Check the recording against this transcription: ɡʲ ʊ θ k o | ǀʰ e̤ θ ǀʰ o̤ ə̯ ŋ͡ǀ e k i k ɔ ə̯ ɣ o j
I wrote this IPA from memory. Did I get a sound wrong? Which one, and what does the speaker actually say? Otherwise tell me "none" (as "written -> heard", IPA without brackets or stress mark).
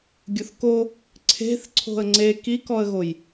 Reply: none